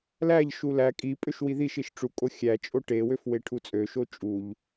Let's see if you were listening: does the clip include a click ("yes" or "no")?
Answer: no